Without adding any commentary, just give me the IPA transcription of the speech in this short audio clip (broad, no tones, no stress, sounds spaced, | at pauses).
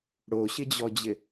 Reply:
ɽ o ɕ ɪ d͡ʑ ɔ d͡ʑ ɪ